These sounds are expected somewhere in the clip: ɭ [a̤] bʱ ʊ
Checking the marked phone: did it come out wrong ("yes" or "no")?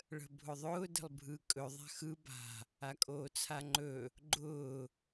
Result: yes